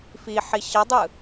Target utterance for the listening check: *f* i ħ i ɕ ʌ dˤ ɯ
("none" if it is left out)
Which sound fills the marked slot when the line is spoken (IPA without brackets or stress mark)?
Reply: f